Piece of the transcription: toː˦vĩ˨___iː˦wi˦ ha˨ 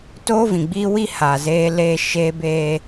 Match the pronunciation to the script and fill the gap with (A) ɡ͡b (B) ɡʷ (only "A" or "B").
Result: A